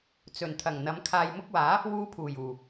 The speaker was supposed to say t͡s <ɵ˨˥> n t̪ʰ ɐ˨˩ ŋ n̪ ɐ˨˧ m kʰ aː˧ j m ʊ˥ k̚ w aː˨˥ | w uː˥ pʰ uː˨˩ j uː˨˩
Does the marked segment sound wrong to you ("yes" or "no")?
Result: yes